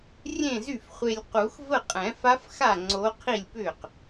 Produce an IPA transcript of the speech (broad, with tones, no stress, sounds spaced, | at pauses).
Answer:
rʲ ẽ˥˩ z y˥˩ f χʷ e˧ lʲ q u˨˩˦ x v ə˥˩ qʼ ɛ̃˨˩˦ f a˧˥ f x a˥˩ ŋ͡ǀ o˧˥ qʰ i˥˩ lʲ p ʏ˥˩ q